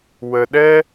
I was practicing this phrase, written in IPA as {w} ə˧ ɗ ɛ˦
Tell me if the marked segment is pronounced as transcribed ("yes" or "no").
yes